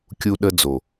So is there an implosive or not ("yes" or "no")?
yes